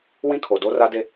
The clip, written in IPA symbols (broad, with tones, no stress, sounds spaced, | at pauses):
w ĩ˦ kʰ o˨ d o˦ r a˦ d e˦